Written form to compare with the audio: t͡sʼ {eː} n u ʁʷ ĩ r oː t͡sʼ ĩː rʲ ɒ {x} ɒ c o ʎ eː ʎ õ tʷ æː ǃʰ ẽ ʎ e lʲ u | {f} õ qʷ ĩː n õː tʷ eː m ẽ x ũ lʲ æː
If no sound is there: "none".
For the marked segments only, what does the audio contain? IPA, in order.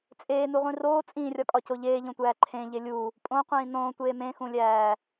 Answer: eː, kʼ, pʼ

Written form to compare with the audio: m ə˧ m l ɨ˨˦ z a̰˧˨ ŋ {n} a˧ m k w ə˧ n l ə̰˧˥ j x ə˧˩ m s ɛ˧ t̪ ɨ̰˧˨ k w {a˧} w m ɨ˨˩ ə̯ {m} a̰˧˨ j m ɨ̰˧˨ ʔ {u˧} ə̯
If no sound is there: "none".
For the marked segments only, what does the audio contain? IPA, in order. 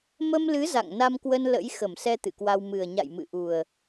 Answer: n, a˧, ɲ, u˨˩

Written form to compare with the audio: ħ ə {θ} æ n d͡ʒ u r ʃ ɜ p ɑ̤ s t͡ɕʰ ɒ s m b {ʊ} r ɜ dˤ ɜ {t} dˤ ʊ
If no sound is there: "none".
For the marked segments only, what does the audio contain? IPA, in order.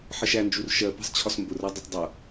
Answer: ʃ, ʊ, tˤ

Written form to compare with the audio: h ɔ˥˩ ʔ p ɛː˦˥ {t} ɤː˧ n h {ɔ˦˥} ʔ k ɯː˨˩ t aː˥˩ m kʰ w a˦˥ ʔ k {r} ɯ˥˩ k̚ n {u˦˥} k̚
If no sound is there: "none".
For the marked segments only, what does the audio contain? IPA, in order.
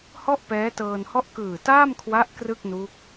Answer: t, ɔ˥˩, r, u˦˥

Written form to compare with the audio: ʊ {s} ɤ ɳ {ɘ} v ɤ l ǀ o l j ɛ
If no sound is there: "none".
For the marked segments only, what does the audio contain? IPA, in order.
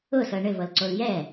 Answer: s, ɘ

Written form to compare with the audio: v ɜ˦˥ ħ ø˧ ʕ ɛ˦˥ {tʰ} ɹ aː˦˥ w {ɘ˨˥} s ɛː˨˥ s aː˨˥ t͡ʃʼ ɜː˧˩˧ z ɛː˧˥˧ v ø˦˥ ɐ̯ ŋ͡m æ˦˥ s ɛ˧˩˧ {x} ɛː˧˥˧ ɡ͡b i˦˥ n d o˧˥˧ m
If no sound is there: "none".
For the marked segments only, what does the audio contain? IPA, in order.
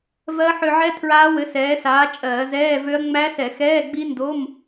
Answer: tʰ, ɘ˨˥, x

